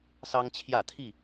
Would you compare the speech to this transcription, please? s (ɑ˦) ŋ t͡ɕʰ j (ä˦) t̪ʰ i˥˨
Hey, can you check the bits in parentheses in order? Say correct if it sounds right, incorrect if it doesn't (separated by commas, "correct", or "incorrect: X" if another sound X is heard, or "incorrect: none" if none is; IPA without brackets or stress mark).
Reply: correct, incorrect: ä˥˨